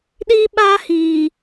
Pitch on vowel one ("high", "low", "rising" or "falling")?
high